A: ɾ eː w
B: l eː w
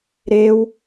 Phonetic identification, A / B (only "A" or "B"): A